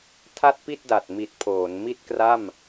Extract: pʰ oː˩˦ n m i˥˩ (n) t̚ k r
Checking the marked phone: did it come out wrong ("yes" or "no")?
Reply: yes